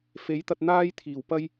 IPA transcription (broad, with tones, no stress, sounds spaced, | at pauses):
f e˨˥ j t̪ ɐ˧ t̚ n̪ aː˥ j t̪ʰ iː˨˩ w p ɐ˥ j